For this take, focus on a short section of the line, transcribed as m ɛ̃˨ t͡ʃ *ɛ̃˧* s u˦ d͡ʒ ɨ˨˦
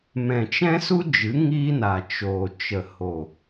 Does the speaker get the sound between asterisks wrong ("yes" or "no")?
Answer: yes